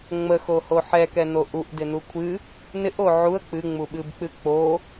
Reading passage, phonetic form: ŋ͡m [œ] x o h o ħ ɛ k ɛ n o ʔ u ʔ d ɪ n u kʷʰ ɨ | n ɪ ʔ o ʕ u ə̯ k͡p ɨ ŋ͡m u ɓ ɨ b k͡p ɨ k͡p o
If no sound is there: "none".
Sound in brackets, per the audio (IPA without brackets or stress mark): ə